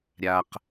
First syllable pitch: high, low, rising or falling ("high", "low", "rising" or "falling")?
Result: low